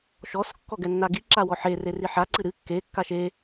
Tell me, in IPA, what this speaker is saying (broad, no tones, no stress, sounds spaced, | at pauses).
ʃ ɔ s kː ɔ ɡ ɛ nː a ɡ i ǁ a w ɔ ħ e r e r i ħ a ǀ ɨ ɾ ɨ kː e kː a ʃ e